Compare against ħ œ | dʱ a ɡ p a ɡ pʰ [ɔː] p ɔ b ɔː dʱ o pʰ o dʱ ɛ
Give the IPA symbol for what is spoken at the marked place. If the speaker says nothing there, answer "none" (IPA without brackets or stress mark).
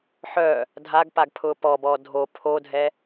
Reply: ʊː